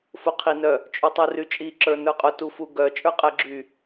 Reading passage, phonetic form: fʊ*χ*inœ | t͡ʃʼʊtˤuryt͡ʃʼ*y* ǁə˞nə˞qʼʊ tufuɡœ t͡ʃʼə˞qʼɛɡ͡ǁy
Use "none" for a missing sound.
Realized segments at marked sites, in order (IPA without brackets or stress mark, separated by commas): qʰ, i